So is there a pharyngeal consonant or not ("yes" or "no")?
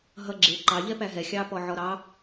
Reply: yes